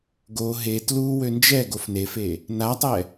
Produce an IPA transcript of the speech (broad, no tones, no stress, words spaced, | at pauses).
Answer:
ɡo ɦe tlu wønd͡ʒɛɡof nefe | natˤɛ